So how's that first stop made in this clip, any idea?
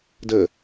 plain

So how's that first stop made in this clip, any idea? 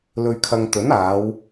aspirated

